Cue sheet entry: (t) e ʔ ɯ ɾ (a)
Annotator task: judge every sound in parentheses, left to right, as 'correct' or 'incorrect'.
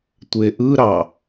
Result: incorrect, incorrect

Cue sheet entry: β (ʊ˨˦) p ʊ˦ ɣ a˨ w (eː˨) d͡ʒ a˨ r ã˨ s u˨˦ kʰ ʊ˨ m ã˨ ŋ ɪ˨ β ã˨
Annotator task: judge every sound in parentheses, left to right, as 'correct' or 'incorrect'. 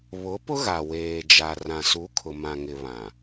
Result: correct, correct

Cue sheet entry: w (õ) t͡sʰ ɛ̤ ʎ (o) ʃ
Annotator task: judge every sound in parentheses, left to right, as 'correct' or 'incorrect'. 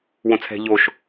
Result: correct, correct

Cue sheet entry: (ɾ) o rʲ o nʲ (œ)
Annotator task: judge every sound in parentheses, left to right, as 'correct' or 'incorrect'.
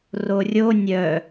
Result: incorrect, correct

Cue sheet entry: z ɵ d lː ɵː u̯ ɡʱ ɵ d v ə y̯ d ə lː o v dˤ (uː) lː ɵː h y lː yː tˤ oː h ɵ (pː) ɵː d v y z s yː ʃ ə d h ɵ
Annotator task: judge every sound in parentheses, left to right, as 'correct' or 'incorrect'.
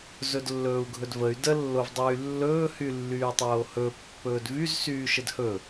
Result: incorrect, correct

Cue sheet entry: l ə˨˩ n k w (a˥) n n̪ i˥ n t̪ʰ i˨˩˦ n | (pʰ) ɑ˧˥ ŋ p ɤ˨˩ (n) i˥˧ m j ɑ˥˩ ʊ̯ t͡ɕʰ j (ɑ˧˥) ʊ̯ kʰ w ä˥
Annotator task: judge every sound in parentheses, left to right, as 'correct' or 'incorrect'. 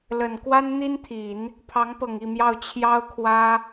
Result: correct, correct, incorrect, incorrect

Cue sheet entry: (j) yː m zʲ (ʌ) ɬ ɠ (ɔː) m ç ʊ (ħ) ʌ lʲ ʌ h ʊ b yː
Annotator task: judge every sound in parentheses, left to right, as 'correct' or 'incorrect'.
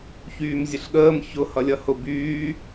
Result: incorrect, incorrect, incorrect, incorrect

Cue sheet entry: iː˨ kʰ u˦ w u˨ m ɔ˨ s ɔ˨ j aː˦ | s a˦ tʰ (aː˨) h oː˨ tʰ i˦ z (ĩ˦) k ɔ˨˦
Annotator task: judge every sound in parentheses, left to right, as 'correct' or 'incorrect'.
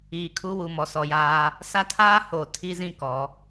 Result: incorrect, correct

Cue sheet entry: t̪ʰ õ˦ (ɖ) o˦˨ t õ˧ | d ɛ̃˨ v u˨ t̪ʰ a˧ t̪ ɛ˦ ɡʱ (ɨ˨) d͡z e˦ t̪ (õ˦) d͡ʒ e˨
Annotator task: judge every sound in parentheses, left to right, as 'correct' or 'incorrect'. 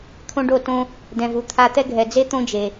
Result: correct, incorrect, correct

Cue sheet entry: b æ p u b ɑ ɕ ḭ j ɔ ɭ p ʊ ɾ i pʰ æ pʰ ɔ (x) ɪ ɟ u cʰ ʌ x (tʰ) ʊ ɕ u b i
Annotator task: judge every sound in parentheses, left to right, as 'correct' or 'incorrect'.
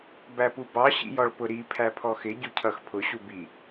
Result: correct, incorrect

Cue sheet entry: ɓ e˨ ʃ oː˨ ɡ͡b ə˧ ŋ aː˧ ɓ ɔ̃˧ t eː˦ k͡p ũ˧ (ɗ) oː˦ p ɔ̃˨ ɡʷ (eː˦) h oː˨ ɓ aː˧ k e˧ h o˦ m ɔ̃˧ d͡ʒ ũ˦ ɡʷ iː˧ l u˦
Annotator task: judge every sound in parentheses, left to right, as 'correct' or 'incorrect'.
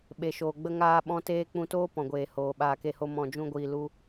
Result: incorrect, incorrect

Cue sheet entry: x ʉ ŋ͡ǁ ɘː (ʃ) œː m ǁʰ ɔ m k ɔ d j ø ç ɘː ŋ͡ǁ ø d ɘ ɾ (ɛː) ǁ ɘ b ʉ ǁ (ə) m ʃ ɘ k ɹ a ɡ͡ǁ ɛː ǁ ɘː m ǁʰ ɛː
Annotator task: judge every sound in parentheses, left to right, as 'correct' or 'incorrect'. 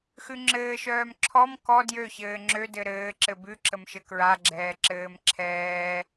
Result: correct, incorrect, correct

